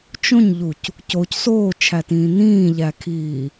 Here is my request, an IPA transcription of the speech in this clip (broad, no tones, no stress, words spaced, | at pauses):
t͡ʃõɲʎuc | coc soːt͡ʃʰætĩː nĩːʎækʰiː